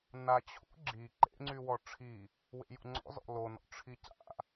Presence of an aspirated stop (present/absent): present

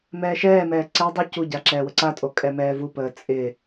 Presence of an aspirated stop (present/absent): absent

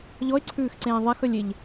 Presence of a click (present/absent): present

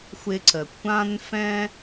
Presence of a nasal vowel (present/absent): present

